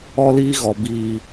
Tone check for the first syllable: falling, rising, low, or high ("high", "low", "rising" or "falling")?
high